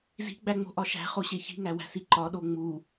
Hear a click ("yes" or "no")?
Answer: yes